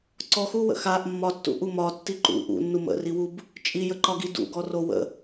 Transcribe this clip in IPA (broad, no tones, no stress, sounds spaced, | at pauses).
ǀ ɔ x u w ə̰ x a ʔ mː ɒ tː ṵ ʔ u m ɒ tː i ǃ ṵ ʔ ṵ nː u m ə̰ r i w u b | t͡ʃʼ i j ə ǃ ɒ ɡ i d ṵ ɡ ɔ r o w ə̰